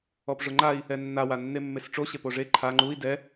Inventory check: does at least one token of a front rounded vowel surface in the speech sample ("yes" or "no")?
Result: no